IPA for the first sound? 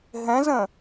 ɦ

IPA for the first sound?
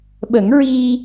ɓ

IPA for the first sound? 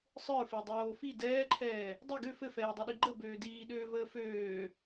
sˤ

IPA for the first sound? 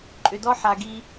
ǃʼ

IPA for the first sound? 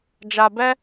d͡ʒ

